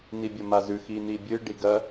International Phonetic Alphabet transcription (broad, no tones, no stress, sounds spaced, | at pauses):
n i bʲ ɐ m a z ʉ x i n i bʲ ɨ ɖ i ɡ ɐ